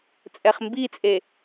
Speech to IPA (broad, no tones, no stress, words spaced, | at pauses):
t͡sʼɛχmbit͡sʼe